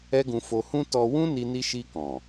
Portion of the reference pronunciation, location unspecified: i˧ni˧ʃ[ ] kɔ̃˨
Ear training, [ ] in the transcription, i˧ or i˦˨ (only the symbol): i˧